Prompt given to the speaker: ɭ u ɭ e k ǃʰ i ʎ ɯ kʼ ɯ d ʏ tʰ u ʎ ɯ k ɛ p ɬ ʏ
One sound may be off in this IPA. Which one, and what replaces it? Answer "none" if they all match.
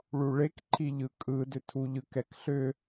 p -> k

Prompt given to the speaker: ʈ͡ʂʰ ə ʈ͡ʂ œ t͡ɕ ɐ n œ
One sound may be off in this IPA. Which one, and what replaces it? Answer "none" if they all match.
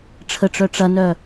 t͡ɕ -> ʈ͡ʂ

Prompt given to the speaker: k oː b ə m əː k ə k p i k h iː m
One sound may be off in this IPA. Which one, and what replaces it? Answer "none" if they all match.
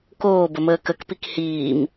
none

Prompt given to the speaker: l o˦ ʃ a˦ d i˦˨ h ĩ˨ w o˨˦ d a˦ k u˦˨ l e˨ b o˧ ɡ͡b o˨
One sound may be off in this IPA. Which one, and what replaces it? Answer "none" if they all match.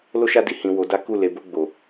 none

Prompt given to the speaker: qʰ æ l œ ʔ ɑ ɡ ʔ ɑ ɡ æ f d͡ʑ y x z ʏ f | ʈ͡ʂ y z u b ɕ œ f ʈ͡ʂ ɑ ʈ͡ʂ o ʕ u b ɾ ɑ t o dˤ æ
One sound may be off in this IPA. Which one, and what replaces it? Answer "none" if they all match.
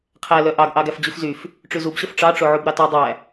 ʏ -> y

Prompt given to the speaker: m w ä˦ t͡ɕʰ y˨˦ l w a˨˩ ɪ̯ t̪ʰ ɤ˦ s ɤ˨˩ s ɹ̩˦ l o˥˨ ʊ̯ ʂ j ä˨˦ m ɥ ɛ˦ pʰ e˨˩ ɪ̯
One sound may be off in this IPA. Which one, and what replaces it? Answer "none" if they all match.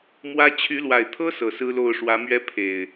j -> w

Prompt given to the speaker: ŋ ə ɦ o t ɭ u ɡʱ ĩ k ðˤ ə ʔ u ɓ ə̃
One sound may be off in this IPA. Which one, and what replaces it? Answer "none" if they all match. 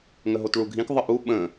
none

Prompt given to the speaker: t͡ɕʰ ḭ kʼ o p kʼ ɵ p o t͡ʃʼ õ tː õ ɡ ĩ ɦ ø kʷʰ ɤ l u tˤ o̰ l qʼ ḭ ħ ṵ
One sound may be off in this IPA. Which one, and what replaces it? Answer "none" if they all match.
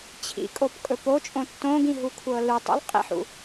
ø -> u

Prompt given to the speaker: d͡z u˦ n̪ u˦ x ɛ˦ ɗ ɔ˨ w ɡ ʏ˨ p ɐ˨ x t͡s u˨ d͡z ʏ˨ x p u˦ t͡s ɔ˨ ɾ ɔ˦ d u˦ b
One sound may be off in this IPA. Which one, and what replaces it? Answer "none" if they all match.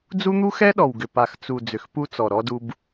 ɐ˨ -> a˨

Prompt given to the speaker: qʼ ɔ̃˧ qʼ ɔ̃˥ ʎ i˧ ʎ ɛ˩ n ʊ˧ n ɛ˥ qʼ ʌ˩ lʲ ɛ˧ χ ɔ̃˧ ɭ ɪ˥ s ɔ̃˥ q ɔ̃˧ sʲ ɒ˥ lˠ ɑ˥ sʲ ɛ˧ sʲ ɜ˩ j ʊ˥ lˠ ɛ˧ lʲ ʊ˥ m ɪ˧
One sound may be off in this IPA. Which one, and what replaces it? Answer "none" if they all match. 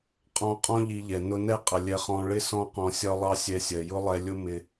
none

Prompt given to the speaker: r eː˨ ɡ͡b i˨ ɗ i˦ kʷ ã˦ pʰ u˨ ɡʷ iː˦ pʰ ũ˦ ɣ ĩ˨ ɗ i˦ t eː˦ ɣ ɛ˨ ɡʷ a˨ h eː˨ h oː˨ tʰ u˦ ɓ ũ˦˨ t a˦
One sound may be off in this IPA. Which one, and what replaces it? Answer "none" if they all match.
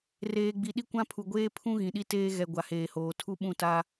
iː˦ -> eː˦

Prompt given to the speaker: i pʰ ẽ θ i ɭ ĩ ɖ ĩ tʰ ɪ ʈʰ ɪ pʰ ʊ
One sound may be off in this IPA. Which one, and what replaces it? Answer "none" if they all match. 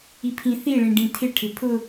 ẽ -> ĩ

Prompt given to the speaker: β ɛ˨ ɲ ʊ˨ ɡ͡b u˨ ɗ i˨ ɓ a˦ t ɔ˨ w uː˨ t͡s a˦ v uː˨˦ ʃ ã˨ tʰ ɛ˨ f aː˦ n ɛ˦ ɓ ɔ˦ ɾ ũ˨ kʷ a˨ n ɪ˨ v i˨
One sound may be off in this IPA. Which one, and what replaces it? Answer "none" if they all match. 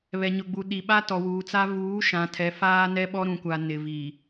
none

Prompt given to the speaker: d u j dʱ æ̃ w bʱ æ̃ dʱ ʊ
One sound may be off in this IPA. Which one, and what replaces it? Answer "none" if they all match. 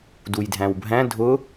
none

